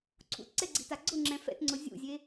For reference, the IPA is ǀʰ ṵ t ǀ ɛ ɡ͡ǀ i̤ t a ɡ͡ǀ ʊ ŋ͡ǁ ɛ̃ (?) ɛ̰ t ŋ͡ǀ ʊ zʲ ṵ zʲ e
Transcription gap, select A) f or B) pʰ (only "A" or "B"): A